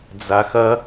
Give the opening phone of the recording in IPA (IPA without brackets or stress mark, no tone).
d͡z